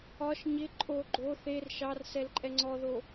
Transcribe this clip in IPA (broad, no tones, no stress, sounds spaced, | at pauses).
ɒ ʃ ɲ ɪ ǃʼ o ɡ͡ǃ o θ e r ʃ ɑ r s ɛ l ǃʼ ɛ ŋ͡ǀ ɔ ð o